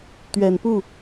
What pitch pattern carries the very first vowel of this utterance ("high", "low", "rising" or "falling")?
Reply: low